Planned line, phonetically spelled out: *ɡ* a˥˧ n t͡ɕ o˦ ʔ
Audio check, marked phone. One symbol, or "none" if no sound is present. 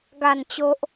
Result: ɡ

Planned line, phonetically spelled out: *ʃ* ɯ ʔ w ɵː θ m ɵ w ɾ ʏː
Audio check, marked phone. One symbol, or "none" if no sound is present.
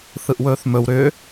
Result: θ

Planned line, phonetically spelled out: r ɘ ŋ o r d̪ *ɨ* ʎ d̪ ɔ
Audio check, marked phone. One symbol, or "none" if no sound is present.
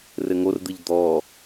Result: ɨ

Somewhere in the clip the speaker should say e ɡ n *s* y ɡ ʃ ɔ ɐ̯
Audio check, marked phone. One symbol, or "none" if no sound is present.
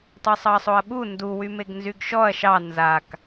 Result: z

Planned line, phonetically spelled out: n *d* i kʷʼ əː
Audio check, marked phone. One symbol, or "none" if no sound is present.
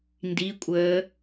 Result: d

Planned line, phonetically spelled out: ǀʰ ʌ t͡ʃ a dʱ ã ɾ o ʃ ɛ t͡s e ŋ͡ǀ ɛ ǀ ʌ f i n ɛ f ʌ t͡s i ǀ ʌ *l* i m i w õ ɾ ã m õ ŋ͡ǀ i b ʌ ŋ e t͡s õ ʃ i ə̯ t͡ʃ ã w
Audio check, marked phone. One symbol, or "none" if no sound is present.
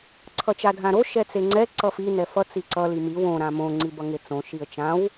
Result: l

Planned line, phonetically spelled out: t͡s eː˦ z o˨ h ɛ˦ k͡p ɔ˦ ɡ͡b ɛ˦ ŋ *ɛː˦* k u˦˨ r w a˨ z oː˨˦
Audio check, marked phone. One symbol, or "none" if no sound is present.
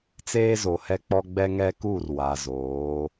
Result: ɛ˦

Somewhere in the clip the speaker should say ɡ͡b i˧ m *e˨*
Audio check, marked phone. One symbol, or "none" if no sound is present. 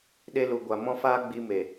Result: e˨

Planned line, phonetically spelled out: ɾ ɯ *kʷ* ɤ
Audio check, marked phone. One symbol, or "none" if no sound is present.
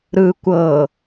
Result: kʷ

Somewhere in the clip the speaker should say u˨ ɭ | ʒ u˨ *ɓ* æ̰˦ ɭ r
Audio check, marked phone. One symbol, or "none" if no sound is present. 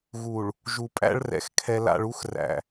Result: pʼ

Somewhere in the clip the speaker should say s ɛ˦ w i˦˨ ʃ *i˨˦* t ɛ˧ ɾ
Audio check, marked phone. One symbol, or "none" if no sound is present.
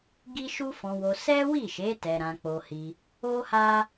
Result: e˨˦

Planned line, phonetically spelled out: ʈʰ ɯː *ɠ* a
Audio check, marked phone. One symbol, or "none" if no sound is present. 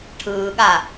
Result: ɠ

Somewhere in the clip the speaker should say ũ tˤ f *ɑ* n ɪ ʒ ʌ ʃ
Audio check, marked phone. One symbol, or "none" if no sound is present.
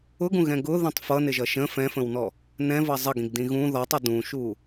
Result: ʌ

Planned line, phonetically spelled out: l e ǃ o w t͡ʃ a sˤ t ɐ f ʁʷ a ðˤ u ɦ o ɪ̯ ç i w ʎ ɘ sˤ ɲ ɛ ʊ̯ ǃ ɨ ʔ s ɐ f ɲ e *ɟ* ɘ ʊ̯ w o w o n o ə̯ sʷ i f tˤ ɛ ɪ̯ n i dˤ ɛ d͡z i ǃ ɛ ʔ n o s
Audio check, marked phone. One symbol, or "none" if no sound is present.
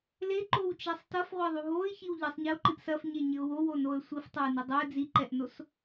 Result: ɲ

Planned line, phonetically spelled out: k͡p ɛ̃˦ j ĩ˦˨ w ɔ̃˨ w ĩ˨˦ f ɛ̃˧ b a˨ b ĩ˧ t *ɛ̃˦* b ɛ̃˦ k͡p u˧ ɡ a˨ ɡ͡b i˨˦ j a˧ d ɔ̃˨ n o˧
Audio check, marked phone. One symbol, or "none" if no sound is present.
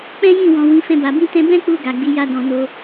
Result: ɛ̃˧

